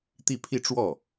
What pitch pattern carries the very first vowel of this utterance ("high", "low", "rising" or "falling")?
falling